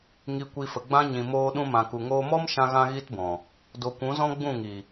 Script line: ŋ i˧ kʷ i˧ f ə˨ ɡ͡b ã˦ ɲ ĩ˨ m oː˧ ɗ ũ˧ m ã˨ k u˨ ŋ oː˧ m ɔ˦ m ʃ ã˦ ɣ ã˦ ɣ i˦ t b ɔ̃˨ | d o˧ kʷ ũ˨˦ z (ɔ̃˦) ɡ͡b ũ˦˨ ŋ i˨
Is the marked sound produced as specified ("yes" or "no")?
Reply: yes